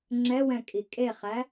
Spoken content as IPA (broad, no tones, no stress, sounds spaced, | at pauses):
ŋ͡ǁ ɛ w ɛ̃ kʼ i kʼ e χ æ